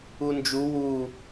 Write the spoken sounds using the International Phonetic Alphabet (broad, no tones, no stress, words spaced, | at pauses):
und͡ʒu wu